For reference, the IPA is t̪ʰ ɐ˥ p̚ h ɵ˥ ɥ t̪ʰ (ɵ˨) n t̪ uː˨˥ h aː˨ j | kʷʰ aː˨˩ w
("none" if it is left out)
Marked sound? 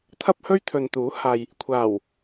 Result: ɵ˨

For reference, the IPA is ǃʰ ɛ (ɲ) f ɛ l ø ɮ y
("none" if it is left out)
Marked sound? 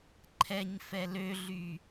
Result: ɲ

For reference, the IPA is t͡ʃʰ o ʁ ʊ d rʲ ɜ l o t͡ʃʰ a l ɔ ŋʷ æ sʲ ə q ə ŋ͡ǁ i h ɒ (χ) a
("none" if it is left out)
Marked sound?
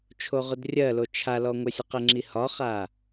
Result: χ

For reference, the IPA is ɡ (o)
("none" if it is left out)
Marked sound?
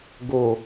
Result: o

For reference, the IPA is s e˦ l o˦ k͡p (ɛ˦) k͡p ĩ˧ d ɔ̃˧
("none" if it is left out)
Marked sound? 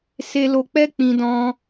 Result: ɛ˦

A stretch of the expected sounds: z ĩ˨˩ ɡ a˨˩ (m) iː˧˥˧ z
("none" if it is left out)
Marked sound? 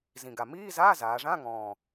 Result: m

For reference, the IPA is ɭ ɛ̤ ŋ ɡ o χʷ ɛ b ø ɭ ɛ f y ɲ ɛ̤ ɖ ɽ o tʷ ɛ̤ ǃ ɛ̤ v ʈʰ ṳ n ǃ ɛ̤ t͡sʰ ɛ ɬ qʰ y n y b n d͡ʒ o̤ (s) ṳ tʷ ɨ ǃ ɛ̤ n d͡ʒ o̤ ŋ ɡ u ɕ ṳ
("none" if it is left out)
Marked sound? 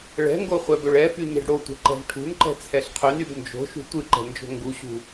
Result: ʃ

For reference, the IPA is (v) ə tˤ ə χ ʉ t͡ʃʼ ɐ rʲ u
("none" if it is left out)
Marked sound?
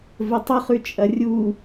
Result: v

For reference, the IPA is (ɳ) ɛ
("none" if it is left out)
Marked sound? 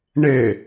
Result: ɳ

